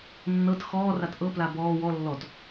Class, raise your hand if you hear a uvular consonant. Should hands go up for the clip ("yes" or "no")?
no